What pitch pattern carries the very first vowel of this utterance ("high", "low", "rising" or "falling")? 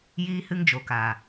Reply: high